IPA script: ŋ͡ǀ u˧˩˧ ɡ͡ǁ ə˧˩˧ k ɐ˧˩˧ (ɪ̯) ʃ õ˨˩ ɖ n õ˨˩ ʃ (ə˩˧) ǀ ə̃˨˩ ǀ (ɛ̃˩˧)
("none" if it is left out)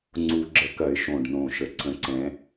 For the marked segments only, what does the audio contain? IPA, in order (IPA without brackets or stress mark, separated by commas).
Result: ɪ̯, ə˨˩, ɛ̃˩˧